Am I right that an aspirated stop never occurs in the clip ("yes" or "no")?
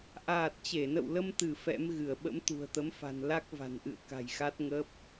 yes